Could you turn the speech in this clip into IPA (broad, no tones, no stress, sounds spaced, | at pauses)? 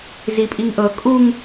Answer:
z i pʼ i ŋ ʔ ɤ kʼ u ŋ